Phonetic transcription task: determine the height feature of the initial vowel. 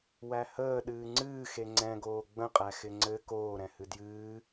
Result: low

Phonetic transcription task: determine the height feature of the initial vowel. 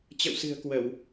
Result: mid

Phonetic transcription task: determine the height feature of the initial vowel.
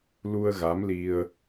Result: high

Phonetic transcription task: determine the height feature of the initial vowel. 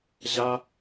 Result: low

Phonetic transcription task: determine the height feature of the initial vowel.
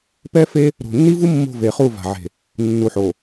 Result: mid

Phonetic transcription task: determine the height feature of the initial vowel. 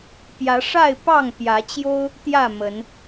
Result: low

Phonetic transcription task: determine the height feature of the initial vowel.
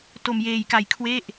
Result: mid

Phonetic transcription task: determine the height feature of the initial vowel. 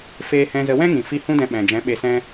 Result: mid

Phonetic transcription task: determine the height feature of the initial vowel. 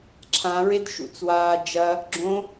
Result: low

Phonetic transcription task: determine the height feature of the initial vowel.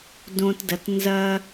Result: mid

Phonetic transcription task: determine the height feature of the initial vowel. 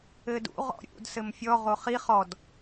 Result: mid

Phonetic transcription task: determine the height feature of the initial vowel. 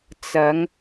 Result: low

